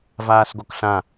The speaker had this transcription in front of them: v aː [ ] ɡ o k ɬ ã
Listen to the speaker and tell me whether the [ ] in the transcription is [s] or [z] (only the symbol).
s